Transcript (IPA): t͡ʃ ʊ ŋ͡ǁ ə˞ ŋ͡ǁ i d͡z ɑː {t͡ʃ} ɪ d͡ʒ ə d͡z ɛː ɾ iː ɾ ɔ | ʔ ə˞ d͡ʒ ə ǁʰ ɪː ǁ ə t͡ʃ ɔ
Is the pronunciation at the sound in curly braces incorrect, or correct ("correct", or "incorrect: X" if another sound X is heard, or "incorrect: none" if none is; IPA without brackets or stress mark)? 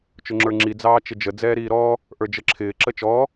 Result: correct